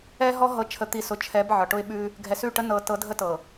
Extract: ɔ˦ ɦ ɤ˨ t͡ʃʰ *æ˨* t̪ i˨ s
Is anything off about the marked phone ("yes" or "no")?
yes